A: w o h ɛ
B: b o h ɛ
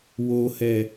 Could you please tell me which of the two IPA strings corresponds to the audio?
A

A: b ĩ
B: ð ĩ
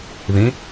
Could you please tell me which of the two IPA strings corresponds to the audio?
B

